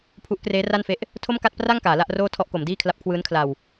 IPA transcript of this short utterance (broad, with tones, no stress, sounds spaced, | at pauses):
pʰ u˦˥ ʔ k r eː˦˥ r a˥˩ n f e˦˥ ʔ | tʰ o˥˩ m k a˥˩ t̚ p r a˥˩ ŋ k aː˩˦ l a˥˩ ʔ r oː˥˩ tʰ ɔ˥˩ ʔ k o˩˦ m d iː˥˩ kʰ l a˦˥ p̚ kʰ w ɯː˦˥ n kʰ l a˨˩ w